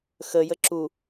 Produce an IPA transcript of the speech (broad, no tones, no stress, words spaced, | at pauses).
xə jəǁu